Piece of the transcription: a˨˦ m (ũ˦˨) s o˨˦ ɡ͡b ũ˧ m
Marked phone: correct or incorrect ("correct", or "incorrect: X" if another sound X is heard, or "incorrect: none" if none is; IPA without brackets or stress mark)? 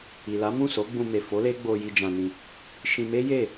correct